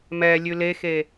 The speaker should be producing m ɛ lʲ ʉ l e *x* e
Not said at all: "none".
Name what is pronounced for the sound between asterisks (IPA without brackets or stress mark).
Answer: x